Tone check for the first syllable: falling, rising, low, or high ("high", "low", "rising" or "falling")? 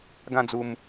high